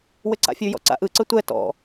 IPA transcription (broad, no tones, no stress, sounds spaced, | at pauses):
w ɘ ǀ a̰ fʲ ʉ j ɔ̰ ǀ a̰ ʔ ɯ ǀ ɘ tʷ ɛ t ɔ̰